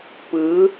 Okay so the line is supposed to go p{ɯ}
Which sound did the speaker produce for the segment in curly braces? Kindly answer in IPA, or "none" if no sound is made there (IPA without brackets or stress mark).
ɯ